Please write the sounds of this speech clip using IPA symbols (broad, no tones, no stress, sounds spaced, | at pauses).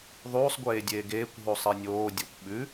ðˤ uː sˤ ɡʷ eː dʲ eː ɡ eː kʷ ɦ u sˤ i nʲ oː dʲ o kʷ ɓ ʉ